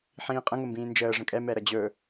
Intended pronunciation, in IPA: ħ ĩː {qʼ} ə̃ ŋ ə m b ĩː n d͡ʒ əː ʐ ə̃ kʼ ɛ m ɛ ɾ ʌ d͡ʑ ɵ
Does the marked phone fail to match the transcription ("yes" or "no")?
no